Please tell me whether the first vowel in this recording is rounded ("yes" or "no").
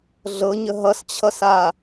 no